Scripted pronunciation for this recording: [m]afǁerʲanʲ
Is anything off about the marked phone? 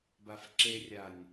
yes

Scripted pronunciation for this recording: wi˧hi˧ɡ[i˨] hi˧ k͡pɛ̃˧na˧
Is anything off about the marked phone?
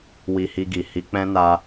no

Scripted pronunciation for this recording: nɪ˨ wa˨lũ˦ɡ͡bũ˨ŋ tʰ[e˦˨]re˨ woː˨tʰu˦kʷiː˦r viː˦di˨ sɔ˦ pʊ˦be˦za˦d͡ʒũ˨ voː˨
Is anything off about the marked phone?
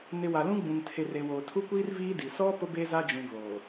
yes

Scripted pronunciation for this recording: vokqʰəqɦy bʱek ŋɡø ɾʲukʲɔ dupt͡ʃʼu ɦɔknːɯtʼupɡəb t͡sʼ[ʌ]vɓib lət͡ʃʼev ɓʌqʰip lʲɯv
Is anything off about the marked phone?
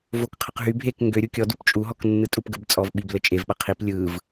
yes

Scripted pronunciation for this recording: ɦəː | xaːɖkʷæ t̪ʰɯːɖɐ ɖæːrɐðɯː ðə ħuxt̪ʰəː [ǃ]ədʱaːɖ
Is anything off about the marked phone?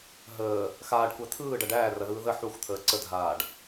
yes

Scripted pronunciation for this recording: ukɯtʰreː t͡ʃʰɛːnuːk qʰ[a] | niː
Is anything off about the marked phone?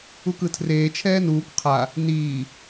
no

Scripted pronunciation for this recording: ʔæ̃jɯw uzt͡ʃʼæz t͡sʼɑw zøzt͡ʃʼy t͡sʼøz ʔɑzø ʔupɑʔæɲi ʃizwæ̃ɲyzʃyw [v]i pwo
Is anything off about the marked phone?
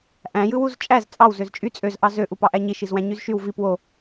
no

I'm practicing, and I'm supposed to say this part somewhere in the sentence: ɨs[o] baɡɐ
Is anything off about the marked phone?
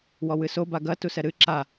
no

